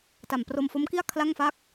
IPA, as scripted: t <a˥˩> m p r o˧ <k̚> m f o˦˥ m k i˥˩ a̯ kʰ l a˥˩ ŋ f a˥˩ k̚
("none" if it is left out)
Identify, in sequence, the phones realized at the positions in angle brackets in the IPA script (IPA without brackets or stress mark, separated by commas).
a˨˩, none